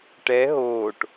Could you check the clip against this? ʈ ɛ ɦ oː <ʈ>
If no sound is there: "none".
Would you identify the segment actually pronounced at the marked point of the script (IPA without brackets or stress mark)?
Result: ʈ